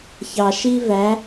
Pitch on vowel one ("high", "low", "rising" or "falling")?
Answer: low